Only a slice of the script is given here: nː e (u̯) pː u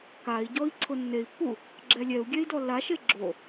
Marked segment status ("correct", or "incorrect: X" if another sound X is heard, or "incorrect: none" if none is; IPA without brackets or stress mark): incorrect: i̯